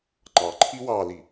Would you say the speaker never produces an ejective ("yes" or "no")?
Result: yes